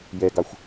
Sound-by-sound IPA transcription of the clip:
jɛɡɑxʷ

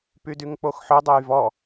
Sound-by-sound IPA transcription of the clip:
pydyŋk͡poxħɵ dˤojvɔ

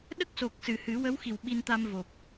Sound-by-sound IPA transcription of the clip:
ɗə˦˥k̚so˨˩k̚sɨ˨˩˨ hɨ˨˩˦wə˧˥wxi˨˩w ɓi˧nt̪a˧mvo˨˩p̚

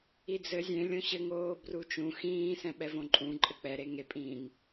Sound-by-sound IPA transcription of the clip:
id͡zɘ zʲẽ lʲõɕɘŋoː brut͡ʃũ xĩː sɛ̃ɓɛvõǃʼũ ǃʼɘk͡pɛɾe ŋepʼĩːŋ

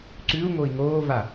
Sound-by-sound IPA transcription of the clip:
ǀʉu̯ŋoi̯ ŋoːva

